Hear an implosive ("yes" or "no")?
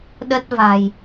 yes